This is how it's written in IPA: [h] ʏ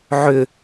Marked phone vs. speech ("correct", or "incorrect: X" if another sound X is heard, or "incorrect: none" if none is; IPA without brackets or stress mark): incorrect: ʕ